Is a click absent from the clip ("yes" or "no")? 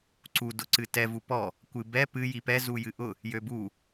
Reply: no